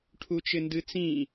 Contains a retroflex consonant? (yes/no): yes